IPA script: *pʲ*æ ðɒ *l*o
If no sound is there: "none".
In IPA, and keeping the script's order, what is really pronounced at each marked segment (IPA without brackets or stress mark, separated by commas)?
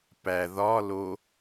p, l